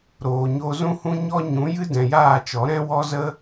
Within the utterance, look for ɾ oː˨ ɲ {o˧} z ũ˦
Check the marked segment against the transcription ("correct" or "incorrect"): correct